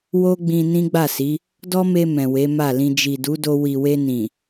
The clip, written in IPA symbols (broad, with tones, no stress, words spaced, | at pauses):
wo˦ɡ͡bĩ˧ nĩ˦ɡ͡ba˦˨si˨˦ | dɔ˦me˧ mɛ̃˨we˨˦ma˦˨lĩ˧ d͡ʒi˨du˨˦do˧ wi˨we˧nĩ˨